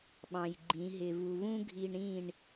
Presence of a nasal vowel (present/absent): present